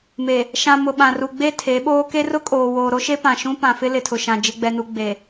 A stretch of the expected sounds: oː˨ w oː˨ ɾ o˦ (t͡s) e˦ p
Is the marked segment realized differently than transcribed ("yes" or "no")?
yes